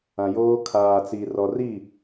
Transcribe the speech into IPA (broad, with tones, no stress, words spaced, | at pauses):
ã˨joː˦ kʰaː˨t͡si˨ rɔ˨ri˦˨